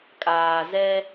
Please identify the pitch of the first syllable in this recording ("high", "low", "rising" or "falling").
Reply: low